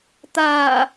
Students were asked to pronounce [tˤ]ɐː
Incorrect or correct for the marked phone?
incorrect: t̪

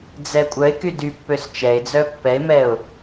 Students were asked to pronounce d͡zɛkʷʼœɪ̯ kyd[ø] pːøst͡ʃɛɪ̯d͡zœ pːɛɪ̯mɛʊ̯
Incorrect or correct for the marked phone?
incorrect: y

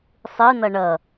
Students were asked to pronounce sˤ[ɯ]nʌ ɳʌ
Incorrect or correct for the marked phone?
correct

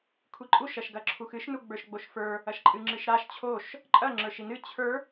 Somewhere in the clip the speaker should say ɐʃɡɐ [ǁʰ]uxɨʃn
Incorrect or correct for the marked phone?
correct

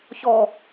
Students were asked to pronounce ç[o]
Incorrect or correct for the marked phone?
incorrect: ɔ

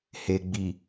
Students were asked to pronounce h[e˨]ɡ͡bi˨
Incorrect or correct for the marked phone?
correct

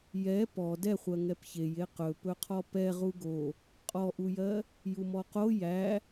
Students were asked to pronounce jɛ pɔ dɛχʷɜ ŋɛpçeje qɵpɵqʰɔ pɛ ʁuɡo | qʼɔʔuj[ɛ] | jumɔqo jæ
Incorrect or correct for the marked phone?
incorrect: ɜ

